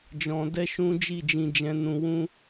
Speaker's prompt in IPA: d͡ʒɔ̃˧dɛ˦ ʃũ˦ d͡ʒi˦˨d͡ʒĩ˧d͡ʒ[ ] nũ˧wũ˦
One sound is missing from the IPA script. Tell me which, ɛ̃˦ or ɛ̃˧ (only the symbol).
ɛ̃˧